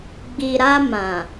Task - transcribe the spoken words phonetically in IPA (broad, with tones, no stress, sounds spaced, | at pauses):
ɡ͡b i˨ ɾ a˧ m ã˨